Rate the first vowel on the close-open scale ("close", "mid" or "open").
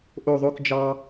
mid